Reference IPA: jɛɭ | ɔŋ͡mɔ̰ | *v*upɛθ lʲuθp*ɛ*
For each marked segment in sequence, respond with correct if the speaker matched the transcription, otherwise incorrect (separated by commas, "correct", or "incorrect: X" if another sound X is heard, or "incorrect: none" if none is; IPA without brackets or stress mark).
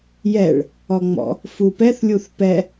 incorrect: f, correct